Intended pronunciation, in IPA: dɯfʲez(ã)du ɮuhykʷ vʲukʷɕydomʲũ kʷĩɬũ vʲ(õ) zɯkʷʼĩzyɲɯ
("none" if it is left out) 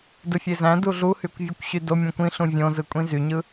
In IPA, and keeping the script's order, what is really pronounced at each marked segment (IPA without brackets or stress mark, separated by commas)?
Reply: æ̃, õ